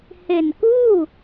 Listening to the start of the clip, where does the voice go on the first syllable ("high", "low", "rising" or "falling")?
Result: low